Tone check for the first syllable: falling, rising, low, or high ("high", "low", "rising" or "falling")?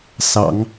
low